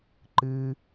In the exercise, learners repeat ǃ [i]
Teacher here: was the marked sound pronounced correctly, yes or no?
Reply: no